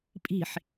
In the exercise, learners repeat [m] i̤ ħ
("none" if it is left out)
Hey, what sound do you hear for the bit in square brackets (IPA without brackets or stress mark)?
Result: pʼ